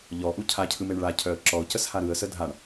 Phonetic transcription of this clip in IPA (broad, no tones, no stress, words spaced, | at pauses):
ʎɔʔu cʰacʰɯmeɳ ɭacʰœə̯ ǁɔʊ̯cəsha ɾɯə̯sə dʱaɳ